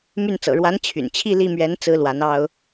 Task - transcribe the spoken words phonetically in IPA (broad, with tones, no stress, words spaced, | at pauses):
my˥˩nt͡sɤ̰˨˩ ɻwa˧˥n t͡ɕʰy̰˨˩n t͡ɕʰi˥˧li˥˩mɥɛ˧˥n t͡sɹ̩˥lwa˧˥nɑ˥ʊ̯